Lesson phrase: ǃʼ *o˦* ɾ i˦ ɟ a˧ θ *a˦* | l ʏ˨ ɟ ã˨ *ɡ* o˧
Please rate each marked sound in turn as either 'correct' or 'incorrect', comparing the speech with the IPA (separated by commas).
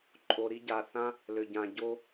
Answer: incorrect, incorrect, incorrect